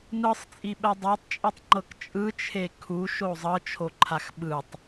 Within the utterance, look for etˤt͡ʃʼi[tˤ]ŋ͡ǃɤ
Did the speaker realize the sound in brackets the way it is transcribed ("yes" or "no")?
yes